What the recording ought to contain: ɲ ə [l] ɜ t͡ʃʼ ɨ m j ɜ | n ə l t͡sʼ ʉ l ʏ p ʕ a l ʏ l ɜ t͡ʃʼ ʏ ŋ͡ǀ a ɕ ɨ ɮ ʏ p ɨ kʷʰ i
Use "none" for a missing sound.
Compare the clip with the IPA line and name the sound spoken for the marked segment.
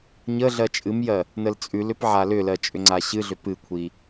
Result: ɮ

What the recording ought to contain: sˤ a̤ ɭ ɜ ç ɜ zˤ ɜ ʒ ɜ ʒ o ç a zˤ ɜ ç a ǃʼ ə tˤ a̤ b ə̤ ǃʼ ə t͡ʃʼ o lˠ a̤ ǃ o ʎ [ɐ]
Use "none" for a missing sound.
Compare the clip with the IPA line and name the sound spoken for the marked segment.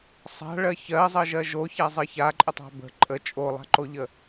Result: ə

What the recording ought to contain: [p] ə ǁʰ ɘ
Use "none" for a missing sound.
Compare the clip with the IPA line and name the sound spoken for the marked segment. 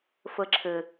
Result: f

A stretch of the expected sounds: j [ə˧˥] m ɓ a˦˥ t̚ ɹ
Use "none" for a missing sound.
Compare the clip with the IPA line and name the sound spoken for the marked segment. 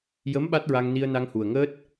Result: ə˧˥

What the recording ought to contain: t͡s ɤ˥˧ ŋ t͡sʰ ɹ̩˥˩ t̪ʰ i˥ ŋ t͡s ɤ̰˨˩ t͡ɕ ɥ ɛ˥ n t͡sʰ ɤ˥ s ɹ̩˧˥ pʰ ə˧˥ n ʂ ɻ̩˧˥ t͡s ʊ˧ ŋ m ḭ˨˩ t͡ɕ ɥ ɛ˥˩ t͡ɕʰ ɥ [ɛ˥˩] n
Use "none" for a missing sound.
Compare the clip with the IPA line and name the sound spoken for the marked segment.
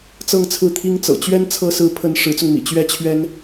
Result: ɛ˥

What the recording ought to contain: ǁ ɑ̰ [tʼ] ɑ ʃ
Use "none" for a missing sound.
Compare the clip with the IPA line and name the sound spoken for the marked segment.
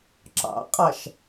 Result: qʼ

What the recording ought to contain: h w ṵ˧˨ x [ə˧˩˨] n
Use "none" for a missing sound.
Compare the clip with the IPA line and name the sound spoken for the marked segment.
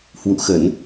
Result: ə˧˩˨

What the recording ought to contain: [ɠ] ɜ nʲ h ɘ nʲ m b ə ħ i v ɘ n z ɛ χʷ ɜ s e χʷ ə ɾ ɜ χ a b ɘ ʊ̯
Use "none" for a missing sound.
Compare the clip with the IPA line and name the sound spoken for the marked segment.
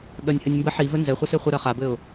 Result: ɠ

